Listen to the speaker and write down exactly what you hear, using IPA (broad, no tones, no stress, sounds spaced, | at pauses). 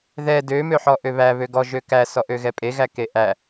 ð ɛ d ø m ø ħ ɔ ʔ ø β æ β ø ɡ ɔ ʒ ø k æ s ɔ ʔ ø ɣ ɛ pʼ e ɣ æ k e ʔ æ